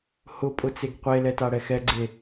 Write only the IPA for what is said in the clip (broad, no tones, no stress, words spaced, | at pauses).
hʊpʼʊt͡seɡ qʷelɛtaɽɛ xɛɡ͡ǀe